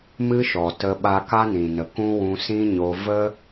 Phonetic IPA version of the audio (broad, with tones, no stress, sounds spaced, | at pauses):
m ɨ˦ ʃ ɔ˨ t ə˧ ɓ a˧ k a˦ n ĩ˨ n ə˨ k ũ˦ w ũ˧ s ĩ˦ ɲ o˧ v ə˦